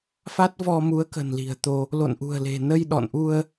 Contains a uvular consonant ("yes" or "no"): no